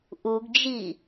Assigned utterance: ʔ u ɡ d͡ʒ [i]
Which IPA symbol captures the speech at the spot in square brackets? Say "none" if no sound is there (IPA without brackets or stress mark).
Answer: i